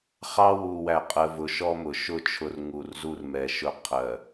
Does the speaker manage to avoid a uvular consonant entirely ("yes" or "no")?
no